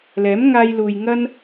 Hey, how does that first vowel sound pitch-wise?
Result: rising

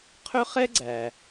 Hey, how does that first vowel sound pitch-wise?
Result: high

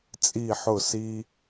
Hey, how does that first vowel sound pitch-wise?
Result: falling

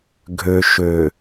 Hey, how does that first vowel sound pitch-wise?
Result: low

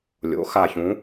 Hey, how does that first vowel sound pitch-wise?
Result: rising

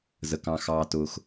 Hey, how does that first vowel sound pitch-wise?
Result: low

